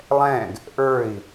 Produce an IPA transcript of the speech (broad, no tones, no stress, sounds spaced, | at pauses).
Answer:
lˠ ɛ̃ ɡ | ʔ ə˞ i̯